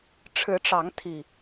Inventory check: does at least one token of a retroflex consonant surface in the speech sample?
yes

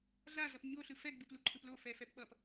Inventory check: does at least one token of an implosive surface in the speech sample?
yes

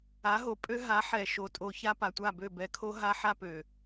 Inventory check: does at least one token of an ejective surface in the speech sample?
yes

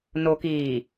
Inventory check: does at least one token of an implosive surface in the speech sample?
no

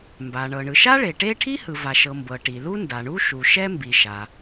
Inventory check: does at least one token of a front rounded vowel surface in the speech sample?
no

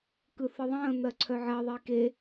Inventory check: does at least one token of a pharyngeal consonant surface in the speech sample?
yes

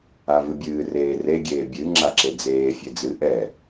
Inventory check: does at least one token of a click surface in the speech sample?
yes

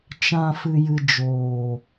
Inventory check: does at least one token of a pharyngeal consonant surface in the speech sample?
no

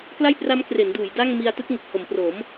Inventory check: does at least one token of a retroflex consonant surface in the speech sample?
no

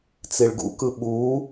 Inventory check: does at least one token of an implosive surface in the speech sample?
yes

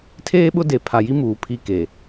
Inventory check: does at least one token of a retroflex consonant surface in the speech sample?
no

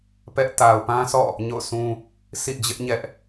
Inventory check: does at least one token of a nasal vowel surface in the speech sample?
yes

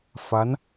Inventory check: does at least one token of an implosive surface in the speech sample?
no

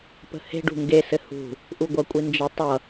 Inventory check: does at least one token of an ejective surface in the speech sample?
yes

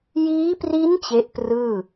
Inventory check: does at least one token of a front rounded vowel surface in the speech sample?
no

